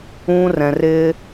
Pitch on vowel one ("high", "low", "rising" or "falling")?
high